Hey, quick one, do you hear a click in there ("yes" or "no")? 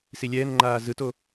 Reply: yes